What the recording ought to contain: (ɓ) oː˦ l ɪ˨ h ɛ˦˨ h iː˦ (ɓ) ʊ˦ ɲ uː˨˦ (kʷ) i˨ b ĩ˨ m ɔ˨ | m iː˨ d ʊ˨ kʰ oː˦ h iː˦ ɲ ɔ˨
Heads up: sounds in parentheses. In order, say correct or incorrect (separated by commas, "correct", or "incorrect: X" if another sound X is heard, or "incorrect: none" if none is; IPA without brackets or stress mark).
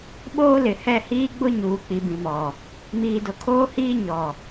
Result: correct, incorrect: ɡ͡b, incorrect: k͡p